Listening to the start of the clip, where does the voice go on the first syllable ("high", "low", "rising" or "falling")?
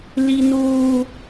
high